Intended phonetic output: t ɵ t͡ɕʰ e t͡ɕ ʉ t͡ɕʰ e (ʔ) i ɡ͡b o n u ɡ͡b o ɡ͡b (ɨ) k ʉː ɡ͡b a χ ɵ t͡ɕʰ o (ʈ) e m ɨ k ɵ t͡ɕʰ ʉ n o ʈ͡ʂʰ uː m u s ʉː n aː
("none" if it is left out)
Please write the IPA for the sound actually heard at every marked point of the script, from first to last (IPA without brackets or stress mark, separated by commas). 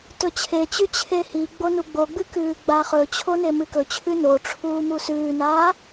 h, ɨ, n